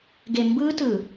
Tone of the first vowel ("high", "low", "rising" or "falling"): low